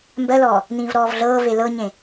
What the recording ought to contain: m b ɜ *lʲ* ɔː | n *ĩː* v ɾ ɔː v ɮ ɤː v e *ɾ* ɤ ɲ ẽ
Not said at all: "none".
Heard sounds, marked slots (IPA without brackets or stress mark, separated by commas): l, ĩː, l